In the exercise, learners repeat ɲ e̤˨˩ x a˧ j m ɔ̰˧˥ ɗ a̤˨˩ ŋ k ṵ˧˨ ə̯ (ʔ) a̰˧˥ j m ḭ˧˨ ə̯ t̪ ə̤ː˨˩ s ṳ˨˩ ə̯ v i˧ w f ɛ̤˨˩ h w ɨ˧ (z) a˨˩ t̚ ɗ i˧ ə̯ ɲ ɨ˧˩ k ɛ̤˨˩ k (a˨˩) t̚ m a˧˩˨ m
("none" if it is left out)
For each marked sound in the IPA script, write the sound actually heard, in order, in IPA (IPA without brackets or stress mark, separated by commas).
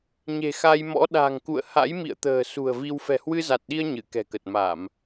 h, z, ə˨˩